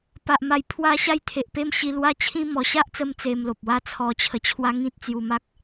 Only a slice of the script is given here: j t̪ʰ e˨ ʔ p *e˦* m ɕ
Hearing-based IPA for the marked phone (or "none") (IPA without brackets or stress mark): e˦